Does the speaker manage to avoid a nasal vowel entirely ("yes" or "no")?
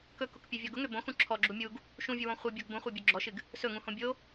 no